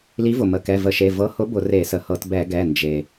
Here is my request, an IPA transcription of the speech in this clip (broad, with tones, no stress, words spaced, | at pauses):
li˨˥vʊ˩mə˩˧˩ kɛ˩˧˩və˧˩˧ʃe˩˧˩ vɤ˨˥hʊ˨˥ bʊ˧˩˧re˧˩˧sə˩hɤ˧˩˧t bɛ˧˩˧ɡɛ˩˧˩ nd͡ʒe˩